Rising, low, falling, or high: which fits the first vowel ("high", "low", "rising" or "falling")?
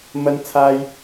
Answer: high